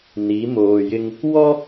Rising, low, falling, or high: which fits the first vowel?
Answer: rising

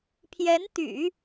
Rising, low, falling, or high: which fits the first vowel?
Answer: rising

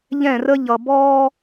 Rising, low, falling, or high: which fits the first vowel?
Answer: falling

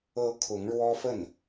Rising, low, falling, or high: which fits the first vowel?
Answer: rising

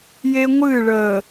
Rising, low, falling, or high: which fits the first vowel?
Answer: high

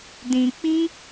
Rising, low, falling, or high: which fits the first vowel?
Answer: low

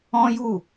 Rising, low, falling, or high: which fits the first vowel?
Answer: high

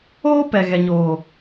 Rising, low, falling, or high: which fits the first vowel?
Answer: high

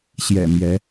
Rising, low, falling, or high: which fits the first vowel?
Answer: low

